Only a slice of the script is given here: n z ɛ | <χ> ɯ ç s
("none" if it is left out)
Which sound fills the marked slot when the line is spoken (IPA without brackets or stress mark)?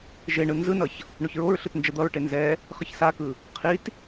χ